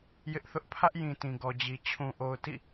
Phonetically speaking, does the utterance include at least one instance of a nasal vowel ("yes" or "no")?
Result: yes